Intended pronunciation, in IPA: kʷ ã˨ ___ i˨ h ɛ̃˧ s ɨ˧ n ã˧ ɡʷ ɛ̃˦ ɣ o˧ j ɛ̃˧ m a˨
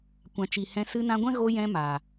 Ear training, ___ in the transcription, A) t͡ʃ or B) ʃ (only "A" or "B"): A